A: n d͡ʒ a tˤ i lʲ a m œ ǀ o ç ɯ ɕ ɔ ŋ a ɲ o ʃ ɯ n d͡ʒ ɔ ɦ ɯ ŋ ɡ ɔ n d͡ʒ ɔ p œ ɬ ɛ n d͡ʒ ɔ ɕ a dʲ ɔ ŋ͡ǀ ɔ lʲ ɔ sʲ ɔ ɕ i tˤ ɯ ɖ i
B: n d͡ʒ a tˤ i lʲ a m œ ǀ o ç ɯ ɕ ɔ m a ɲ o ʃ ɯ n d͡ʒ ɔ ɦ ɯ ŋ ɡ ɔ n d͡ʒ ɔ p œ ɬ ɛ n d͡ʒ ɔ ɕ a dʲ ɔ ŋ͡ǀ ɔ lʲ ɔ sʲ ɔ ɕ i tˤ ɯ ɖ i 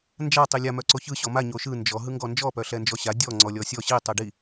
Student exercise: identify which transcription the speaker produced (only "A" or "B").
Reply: B